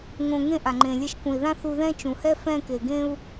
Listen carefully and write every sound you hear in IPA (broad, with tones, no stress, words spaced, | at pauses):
ŋõ˧ŋẽ˥ʔa˩ ŋ͡ǃẽ˩lʲɛ˧ʃkũ˩i̯ðã˥ θu˧ðɛ̃˥t͡ʃũ˩hɛ˥ fɛ̃˧ke˩ɡẽ˧u̯